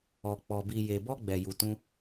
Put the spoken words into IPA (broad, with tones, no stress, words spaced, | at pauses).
ɔ˨ k͡pɔ˨ bi˨je˨bɔ˧ ɡ͡bɛ˨ju˨tũ˧